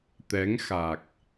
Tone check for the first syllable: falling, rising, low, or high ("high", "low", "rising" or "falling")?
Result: rising